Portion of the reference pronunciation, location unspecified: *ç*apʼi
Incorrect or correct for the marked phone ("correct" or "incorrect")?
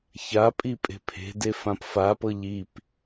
correct